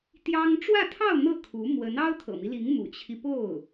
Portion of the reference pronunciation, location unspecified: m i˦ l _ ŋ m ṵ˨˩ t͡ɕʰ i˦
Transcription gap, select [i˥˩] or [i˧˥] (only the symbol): i˧˥